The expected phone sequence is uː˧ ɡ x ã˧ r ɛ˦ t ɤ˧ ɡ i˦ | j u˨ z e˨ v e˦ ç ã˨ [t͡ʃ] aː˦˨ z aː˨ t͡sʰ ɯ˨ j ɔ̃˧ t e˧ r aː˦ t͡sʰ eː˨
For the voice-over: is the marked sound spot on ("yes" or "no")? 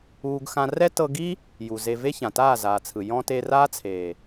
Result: no